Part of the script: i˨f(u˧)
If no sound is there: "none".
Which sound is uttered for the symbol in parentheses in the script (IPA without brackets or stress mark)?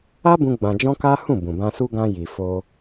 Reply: o˧